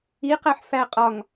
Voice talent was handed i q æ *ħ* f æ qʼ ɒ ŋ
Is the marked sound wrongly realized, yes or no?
no